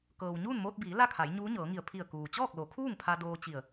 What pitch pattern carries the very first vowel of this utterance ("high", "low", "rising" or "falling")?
low